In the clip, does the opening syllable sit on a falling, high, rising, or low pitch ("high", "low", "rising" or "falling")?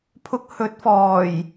low